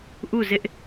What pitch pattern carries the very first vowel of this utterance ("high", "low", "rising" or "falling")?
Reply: falling